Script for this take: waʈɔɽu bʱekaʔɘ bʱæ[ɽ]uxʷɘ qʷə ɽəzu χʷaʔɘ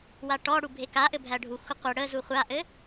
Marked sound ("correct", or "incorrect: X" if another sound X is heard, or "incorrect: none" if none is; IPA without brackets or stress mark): incorrect: ɖʱ